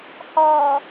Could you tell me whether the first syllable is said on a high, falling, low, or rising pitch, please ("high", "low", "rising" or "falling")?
low